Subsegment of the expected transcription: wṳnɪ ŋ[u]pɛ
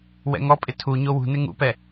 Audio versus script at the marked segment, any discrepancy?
yes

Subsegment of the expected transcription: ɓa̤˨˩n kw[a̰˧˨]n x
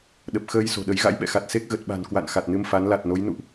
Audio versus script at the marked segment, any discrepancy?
no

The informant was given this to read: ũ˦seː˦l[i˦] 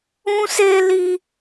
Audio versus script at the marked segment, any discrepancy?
no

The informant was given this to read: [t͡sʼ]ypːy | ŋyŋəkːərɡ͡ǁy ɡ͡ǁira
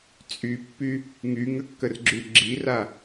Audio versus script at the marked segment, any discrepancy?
no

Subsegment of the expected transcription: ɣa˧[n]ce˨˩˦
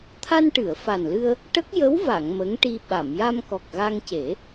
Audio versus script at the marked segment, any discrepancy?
yes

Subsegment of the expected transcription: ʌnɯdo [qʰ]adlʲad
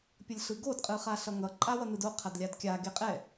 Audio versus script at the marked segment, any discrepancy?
no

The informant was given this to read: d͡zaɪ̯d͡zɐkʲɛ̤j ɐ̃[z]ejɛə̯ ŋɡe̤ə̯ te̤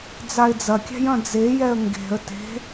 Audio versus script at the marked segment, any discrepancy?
yes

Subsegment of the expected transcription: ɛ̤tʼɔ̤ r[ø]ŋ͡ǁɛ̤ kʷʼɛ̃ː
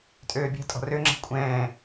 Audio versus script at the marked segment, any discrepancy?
no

